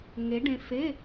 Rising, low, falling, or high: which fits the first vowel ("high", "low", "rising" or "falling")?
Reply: rising